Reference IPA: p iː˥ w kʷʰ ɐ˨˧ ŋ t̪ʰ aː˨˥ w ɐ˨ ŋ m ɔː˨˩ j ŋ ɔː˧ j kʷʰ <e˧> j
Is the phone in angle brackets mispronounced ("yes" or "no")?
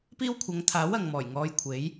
yes